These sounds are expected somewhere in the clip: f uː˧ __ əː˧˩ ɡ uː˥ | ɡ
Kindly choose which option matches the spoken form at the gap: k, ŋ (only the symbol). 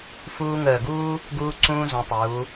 ŋ